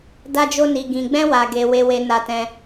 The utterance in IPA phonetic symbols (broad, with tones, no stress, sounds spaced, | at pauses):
d a˦ d͡ʒ o˦ n i˧ ɡ ĩ˧ ɡ͡b ɛ̃˦ w a˧ ɡ e˧ w e˦ w e˦ n a˦ t ɛ̃˦